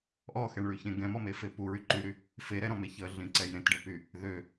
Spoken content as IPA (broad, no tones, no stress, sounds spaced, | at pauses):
ʔ ɔ x ɛ ɳ ɭ y ç ẽ ɡ ɛ̃ m ɔ m e f e p u ɹ y ǃ y ɾ y | f e ɾ ɛ ɾ ɔ̃ m e ç ə ɮ ĩ ǀ ɛ j ɾ ẽ t ɖ ə p y | ð ø